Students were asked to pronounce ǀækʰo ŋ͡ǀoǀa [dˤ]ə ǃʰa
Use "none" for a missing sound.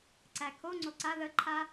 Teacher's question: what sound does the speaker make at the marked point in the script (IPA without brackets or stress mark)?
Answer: ð